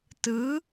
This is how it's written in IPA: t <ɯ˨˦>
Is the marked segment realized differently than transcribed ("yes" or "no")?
no